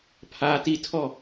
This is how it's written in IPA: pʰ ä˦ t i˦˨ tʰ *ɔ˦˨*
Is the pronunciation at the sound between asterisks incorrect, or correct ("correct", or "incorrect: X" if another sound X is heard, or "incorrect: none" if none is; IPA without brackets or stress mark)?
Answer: correct